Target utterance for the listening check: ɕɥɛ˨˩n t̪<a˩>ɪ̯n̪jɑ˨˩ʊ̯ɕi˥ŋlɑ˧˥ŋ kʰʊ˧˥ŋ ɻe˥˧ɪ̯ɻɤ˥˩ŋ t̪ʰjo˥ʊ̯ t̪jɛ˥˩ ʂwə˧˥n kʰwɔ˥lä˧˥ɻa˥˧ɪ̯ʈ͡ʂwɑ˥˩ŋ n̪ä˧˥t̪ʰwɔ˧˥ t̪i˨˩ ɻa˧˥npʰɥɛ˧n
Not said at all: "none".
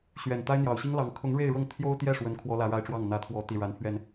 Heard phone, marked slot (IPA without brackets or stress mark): a˥